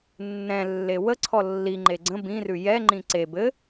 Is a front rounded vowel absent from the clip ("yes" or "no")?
yes